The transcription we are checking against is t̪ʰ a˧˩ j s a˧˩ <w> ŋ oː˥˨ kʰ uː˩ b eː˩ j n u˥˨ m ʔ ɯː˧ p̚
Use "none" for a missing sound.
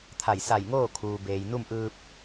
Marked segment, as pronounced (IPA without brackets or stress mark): j